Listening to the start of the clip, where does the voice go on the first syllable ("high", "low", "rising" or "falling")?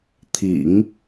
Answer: low